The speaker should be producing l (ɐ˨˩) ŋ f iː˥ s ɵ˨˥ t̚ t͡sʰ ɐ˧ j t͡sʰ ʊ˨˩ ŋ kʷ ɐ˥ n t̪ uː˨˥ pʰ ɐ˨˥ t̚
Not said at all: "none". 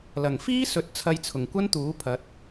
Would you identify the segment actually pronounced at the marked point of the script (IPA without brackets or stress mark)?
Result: ɐ˨˩